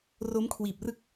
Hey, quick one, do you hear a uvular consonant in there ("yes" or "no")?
no